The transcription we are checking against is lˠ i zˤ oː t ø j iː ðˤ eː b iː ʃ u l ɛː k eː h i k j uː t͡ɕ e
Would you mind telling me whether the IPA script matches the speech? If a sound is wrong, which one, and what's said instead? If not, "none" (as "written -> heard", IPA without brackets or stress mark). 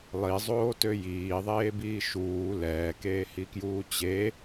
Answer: u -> uː